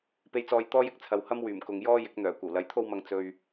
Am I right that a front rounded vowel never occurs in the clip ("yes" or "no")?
no